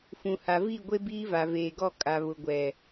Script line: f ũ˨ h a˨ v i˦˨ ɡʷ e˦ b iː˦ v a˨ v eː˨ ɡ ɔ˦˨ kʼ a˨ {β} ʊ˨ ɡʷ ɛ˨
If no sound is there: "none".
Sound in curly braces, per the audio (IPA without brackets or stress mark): β